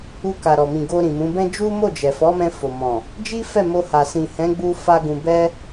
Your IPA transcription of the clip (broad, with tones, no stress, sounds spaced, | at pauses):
u˧ k a˨ ɾ ɔ˨ m ĩ˨ ɡ o˧ ɾ ĩ˨ m ũ˨˦ b ɛ̃˦ d͡ʒ u˦ m o˦˨ d͡ʒ ɛ˨ f ɔ˨˦ m ɛ̃˧ f o˨ m ɔ̃˨ | d͡ʒ i˦ f ɛ˦˨ m o˧ h a˨ s ĩ˨ h ɛ̃˨˦ ɡ͡b u˧ f a˧ ɡ ũ˧ b ɛ˦